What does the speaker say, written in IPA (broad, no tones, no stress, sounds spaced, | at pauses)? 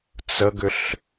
t͡s ə ɡ ʏ ɬ